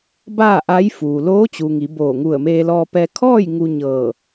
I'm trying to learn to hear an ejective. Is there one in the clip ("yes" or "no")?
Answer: no